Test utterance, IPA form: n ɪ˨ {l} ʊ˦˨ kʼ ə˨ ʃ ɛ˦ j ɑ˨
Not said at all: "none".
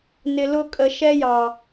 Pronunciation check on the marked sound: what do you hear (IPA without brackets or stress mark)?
l